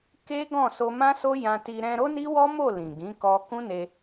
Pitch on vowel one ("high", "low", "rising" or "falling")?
high